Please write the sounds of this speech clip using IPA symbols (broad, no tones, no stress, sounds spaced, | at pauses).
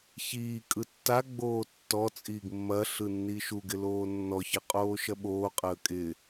ç iː kʼ ɯ tː a ɡ͡b oː tː ɔ t͡sʼ iː ɡ mː ɐ ɬ ɯ nː i ʃ u ɡ ɪ l oː nː ɔ ç ə qʼ oː ʃ ɐ ɓ oː qʼ əː kʼ ɪ